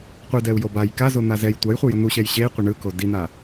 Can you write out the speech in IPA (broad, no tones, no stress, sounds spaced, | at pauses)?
qʷ e d ɛ u̯ j o b a j k a z o n̪ a z ɛ j tʷ a j χʷ ɯ j ʌ n̪ u ɕ ɛ j ɕ e i̯ qʷ e ɳ ɯ k o d i n̪ a